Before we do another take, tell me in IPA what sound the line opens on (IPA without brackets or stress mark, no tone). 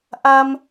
ʔ